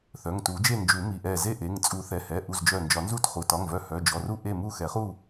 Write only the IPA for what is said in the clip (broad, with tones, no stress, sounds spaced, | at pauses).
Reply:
θ œ˩˧˩ ŋ t u˨˩˦ d͡ʒ e˥˨ n d͡ʒ u˨˩˦ m i˩˧˩ ʔ ɛ˧˩ z e˥˨ ʔ e˩˧˩ ŋ t͡sʼ u˨˩˦ θ ɛ˩˧˩ h ɛ˩˧˩ ʔ u˧˩ z d͡ʒ œ˧˩ n d͡ʒ ɒ˨˩˦ n z u˥˨ t χ u˩˧˩ t ɒ˩˧˩ ŋ v œ˧˩ h œ˩˧˩ d͡ʒ ɔ˩˧˩ r u˥˨ ʔ e˥˨ m u˥˨ x ɛ˨˩˦ χ u˥˨